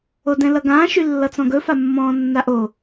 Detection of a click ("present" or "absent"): absent